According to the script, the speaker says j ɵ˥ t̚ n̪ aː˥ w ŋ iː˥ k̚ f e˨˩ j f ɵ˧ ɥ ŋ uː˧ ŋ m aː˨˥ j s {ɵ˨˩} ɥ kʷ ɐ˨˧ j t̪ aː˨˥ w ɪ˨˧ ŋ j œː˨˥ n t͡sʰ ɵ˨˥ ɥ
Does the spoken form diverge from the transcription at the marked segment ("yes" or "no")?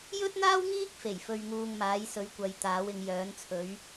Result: yes